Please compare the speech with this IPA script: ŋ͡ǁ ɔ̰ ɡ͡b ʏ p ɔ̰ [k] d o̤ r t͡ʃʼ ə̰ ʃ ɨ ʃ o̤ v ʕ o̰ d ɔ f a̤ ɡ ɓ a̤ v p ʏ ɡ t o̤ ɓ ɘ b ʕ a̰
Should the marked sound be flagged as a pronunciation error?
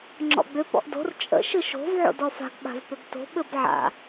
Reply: yes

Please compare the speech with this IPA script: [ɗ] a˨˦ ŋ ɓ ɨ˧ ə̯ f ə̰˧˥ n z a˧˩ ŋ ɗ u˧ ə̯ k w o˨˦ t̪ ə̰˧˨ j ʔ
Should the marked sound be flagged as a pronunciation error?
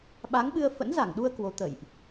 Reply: yes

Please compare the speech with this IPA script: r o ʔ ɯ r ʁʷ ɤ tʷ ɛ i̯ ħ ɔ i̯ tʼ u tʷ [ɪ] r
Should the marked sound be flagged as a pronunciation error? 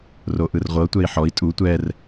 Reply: yes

